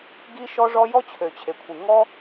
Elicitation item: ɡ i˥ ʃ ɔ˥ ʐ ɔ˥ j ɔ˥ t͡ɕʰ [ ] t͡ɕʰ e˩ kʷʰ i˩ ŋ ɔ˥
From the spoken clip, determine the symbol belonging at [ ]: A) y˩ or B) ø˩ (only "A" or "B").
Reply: B